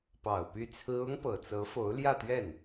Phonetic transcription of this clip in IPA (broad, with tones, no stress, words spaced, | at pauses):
pɑ˨˩ʊ̯ py˥˩t͡sʰɹ̩˥ ʊ˥ŋpɤ˨˩t͡sɤ˧˥ fo˧˥ʊ̯ljä˥˧t̪ɥɛ˥˩n